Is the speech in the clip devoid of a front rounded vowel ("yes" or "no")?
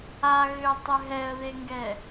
no